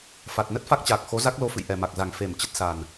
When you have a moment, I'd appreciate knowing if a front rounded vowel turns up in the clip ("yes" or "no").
no